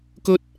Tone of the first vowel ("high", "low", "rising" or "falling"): high